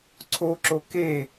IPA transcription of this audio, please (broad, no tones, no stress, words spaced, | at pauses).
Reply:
ǀʰoǁo ke